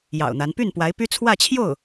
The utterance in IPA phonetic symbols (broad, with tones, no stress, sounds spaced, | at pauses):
j ɑ̰˨˩ ʊ̯ n̪ a˧˥ n p y˥˩ n p w a˧˥ ɪ̯ p y˥ t͡sʰ w ä˥˧ t͡ɕʰ j o˥˩ ʊ̯